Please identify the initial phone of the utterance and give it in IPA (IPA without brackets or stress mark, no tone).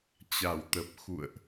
t͡ɕ